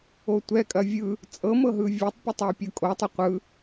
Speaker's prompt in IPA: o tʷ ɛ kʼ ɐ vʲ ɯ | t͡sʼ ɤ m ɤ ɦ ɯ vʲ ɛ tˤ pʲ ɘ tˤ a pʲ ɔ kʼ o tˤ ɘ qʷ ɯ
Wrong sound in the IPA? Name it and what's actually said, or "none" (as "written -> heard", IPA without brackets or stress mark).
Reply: ɔ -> ɤ